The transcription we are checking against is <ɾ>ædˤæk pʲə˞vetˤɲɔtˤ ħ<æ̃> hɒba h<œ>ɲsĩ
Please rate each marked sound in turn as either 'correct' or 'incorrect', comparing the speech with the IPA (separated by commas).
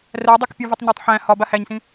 incorrect, correct, incorrect